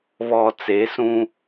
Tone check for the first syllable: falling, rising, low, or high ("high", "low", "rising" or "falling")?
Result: low